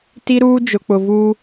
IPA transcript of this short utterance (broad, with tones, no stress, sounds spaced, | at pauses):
t i˦ ɾ uː˦ d͡ʒ ʊ˨ k͡p ʊ˨ v uː˦